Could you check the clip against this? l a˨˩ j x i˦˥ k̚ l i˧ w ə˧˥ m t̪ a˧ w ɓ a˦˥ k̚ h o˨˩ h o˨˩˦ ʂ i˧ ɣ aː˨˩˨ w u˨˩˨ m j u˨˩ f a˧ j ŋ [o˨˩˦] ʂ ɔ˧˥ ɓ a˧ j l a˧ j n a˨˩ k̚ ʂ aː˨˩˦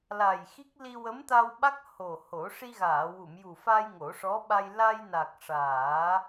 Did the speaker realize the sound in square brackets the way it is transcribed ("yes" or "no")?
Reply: yes